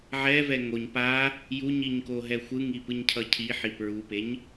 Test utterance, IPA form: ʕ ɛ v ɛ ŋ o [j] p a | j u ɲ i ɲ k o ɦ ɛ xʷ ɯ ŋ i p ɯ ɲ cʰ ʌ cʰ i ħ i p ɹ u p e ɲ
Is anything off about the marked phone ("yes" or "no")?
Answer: yes